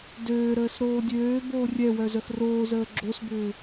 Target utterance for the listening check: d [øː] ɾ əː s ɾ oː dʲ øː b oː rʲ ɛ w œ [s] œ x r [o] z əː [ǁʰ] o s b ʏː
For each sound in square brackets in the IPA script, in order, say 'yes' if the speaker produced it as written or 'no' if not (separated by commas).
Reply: yes, no, no, no